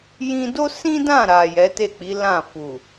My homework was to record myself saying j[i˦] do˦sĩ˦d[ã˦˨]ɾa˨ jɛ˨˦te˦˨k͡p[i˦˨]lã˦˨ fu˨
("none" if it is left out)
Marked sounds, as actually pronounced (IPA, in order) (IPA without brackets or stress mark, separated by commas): ĩ˦, ã˦˨, i˨˦